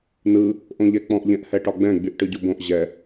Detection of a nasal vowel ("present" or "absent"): present